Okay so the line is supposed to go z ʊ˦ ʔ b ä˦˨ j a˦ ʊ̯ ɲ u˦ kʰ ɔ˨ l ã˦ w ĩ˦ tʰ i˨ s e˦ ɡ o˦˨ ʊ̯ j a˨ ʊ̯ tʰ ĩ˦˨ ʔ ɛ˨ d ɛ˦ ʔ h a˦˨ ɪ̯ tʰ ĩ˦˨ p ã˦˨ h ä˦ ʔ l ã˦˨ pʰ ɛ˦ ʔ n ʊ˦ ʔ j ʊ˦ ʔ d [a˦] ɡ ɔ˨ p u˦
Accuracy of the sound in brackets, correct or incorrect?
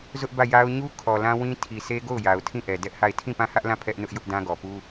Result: incorrect